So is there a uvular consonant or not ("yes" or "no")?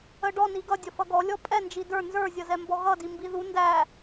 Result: no